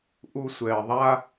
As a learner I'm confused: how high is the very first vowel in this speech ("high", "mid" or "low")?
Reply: high